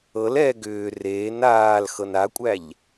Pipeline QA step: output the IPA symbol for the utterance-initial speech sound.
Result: ɤ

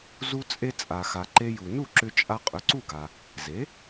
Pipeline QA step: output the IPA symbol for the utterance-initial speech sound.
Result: z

